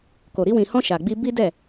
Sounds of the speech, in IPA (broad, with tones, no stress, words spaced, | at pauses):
ko˨ɾi˧ wĩ˨hɔ̃˧ ʃa˨ɡ͡bi˧ bi˦dɛ˦˨